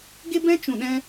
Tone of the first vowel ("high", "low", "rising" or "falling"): high